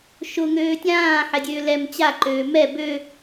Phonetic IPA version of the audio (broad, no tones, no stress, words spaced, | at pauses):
ʃʊ ŋøːtʲãː ħɛdʲøːlɛm t͡ɕa ǃøːmɛ bø